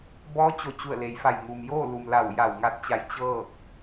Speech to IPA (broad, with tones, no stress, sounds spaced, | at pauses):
b ɔː˧˥ t͡ɕ o˧˩ t͡ɕ u˧˩ ə̯ l e˩ j f a˧˩ j ŋ u˩ m j oː˥˨ l u˩ m l a˧˩ w j a˧˩ w ŋ a˧˥ t̚ t͡ɕ a˧ j t͡ɕ ɤː˥˨ k̚